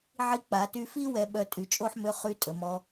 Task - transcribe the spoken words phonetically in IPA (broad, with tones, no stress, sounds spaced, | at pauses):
ʕ i˧ k͡p a˩˧ t y˧ f i˥ w ɛ˧˥ ɓ œ˧ tʼ y˩˧ t͡ʃʼ o˥ ħ m ø˧˥ χ y˧˥ tʼ ə˩˧ m ɔ˧˥